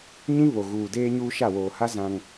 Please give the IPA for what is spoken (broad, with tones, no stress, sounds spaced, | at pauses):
ɲ ĩ˦ β o˨ ɣ uː˨ d eː˦ ɲ uː˦ ʃ a˦˨ w oː˨ h a˦ z ã˦ ŋ